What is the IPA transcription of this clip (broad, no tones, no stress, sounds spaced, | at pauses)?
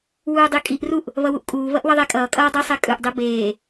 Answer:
w uː dˤ i kʼ i ʔ r u ʔ | β ʌ w u ʔ kʼ uː β ʌ ʔ w ʌ ðˤ ɛ kʼ ʌː kʼ ʌː dˤ i sˤ e kʼ ɯ ʔ dˤ i b eː